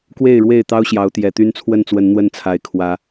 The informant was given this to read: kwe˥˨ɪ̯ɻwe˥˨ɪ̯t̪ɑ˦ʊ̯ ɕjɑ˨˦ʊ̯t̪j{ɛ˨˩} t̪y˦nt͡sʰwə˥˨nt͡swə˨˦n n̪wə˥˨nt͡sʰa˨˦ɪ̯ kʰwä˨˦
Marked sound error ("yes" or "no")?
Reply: no